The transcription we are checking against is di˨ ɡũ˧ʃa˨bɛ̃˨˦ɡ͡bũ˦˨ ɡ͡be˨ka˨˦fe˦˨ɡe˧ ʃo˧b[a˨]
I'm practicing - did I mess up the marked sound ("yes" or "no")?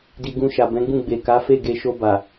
no